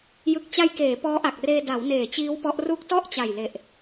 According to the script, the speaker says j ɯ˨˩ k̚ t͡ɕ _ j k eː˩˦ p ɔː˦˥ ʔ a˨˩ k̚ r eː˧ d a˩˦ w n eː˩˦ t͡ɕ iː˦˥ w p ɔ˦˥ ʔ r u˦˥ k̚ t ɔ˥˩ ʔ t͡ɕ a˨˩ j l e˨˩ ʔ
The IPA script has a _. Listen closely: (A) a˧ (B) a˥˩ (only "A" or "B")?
A